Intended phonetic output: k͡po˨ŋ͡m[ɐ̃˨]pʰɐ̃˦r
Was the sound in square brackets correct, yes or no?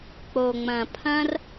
yes